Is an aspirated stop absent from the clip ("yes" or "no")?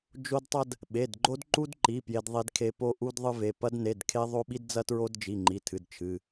no